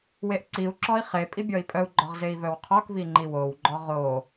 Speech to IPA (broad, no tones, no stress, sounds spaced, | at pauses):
w e ʔ ǀ i u̯ ǁ ɔ i̯ χ e pʼ i bʲ ɔ i̯ pʼ œ u̯ ɡ͡ǃ ɔ ʁ z e i̯ v œ w qʰ ɔ k v i ŋ͡ǃ i w o w ɡ͡ǃ ɔ ʁ o